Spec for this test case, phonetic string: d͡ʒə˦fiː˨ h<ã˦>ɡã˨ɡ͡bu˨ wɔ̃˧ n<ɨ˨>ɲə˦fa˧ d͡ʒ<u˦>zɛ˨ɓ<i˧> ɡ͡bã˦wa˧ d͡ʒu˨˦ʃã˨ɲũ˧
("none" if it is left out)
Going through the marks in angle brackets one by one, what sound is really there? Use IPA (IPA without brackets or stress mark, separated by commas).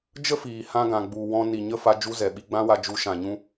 ã˦, i˨, u˦, i˧